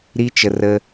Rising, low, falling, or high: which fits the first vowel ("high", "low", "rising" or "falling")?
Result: high